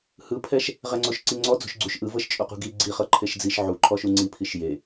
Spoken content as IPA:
h ɯ pʰ ɛ ʃ | ʁ ɛ ŋ͡ǀ o ʃ ǀ i ŋ͡ǀ ɔ d͡z ṳ ʃ ɡ͡ǀ u ʃ ʔ ɯ v ɤ ʃ t͡ʃʼ o q ṳ ɡ i ɡ͡ǀ i χ ɤ ǃʰ e ʃ d͡z i ʃ ʕ u ǃʰ ɔ ʃ u ŋ͡ǀ i pʰ i ʃ j e

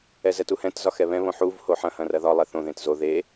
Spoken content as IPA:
ɛ z ɛ t u h ɛ̃ t z ɒ x ɛ β ɛ̃ β õ ħ u v h o ħ ɐ̃ h ɐ̃ r ɐ ð ɒ lˠ ɛ θ õ ð ẽ t z o ð e

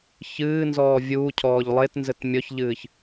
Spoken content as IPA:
ç ɨː n z ɔː vʲ uː cʰ ɔː ʎ lˠ e t n z ɘ t mʲ ɔ ç ʎ ɨː ç

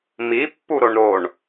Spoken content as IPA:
m i pː u ɾ o ɳ ɾ o ɳ

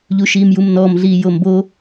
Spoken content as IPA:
ʎ u ʃ iː m j u m n ɔː m ɮ iː j o m b o

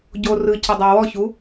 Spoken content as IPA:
ɟ o r ɯ c ə dˤ a w ɔ ç u

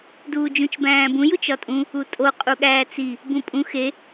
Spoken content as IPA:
d uː d͡ʒ ũ t͡ʃ b æ̃ː b ũ j u t͡ʃ ɒ tʼ ũ | u tʼ o qʼ u ɠ æː t͡s i | b ũ pʼ ũ x e

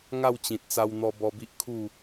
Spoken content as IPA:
ŋ a˥˧ w t͡ɕ ĩ˨ t̚ t͡s a˧ w n̪ ɔ˧ b ɔ˧ b i˦ ʔ kʰ u˥˧

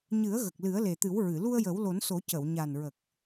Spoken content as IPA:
ɲ ɨ˨˩˦ ə̯ ɣ ə˨˩ k̚ l ɨ˨˩˦ ə̯ l e˨˩ t̪ ɨ˨˩˦ w ɹ ɨ˨˩˨ l u˧ ə̯ j ə˨˩˦ w l o˨˩˦ n s o˨˩˦ c ə˨˩˨ w ɲ a˨˩ n ɹ ə˨˩ k̚

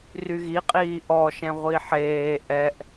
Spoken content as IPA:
r y ɣ i qʼ iː ʔ ɔ ʃ ɛ̃ ʁʷ i ħ eː ʔ ɛ ʔ

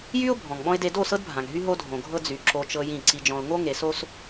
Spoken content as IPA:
j y˦ ʊ̯ bʱ ɔ̃˨ ŋ ɓ ɔ̃˦ ɪ̯ d e˦ d o˦˨ s ɤ˦ d bʱ ã˨ ŋ ɦ y˦ ɦ o˦ dʱ õ˨ ɡʱ ɤ˦ d͡z y˨ ǁ o˦ t͡ʃ ɤ˦ j ĩ˦˨ ǀ i˨ d͡ʒ ɔ̃˨ ʊ̯ ŋ o˦ ŋ e˨ s o˦ s

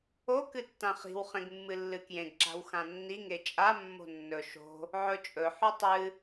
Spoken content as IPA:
o k ɨ tː ã χ i̤ w χ ẽ ɡ mː ɨ lː ɨ k j ẽ ɡ ǁ a̤ w x ã nː i ŋ e t͡ʃʼ a mː o̤ nː ɵ ʃ o̤ | ʕ ɵ t͡ʃʼ ɵ ħ u tˤ ɨ

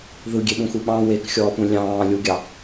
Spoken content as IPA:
ð ɯ ɡʲ e ɓ ũ x u ɓ ɑ̃ w e k xʲ ɔː p ũ lʲ ɑ̃ː lʲ u ɡʲ ɑ

